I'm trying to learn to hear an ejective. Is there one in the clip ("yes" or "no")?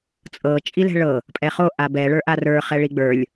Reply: yes